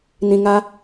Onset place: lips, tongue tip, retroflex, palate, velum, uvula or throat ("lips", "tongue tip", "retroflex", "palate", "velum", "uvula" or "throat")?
tongue tip